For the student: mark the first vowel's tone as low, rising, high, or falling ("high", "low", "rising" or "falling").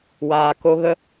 low